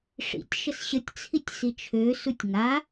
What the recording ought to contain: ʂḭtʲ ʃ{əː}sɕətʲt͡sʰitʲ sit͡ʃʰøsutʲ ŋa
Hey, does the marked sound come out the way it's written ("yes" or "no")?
no